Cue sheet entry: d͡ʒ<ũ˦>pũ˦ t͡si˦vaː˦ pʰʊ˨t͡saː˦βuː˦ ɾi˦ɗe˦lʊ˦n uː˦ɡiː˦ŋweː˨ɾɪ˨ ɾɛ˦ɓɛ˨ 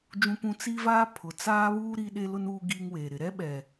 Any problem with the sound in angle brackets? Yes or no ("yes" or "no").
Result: no